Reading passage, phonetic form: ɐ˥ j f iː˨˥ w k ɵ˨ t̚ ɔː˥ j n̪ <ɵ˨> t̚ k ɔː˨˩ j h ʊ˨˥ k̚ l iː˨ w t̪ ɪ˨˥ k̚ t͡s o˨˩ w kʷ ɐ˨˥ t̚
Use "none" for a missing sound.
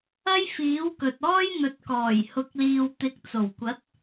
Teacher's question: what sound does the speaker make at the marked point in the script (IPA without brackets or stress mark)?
ɵ˨